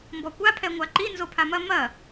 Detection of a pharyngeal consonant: absent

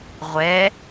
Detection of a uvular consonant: present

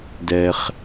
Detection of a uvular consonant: present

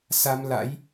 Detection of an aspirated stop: absent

